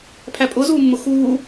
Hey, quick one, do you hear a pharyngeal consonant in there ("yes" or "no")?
no